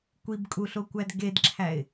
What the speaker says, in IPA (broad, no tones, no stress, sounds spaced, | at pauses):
kʷ i b kʼ u ɬ o kʷ æ d ɡ e d ǁʰ æ ɪ̯